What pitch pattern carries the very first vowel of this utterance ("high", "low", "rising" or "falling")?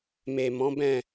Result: low